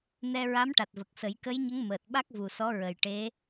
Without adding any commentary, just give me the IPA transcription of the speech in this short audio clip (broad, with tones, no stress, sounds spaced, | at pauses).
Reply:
n ɛ˧ ɹ a˧˥ m ʈ a˨˩ t̚ v ə˨˩ k̚ s ə˨˩˦ j k ə˧˥ j ɲ ə˧˥ ŋ m əː˨˩ t̚ ɓ a˦˥ k̚ v u˨˩ s ɔ˧˥ ɹ ə˨˩ j ʈ e˧˥